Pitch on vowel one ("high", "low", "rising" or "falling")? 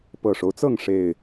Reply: low